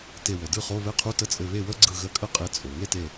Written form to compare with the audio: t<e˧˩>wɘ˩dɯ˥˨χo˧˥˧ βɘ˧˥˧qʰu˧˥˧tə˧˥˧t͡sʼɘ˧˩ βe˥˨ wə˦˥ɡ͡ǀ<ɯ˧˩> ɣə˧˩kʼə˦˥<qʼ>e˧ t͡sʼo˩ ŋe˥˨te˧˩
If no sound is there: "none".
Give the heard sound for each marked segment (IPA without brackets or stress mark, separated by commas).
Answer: e˧˩, ɯ˧˩, qʼ